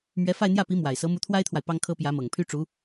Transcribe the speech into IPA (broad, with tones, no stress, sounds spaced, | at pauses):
m ɥ ɛ˧˥ f a˥˧ ɪ̯ n̪ j ä˥˩ p i˧˥ m w a˨˩ ɪ̯ s ɤ˧˥ m u˧˥ t̪ʰ w a˥ ɪ̯ t̪ʰ w a˨ ɪ̯ p ɑ˥ ŋ kʰ ɤ˥ p j ä˧˥ m ɤ˨˩ ŋ pʰ y˥ ʈ͡ʂ u˧˥